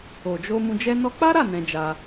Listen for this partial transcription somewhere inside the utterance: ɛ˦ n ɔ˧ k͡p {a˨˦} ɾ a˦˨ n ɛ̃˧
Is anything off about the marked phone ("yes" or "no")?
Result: yes